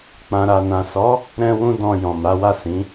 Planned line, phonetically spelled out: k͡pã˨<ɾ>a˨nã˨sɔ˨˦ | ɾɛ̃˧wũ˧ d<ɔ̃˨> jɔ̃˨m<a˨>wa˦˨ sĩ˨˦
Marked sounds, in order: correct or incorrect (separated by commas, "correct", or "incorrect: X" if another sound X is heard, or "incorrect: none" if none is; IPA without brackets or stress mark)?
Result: correct, correct, incorrect: a˨˦